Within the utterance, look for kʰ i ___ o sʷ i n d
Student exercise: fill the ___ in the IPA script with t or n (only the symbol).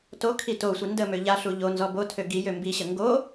t